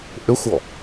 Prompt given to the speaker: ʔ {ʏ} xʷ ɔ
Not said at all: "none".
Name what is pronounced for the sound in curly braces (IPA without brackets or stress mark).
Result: ʏ